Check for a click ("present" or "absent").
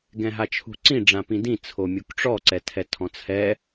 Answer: present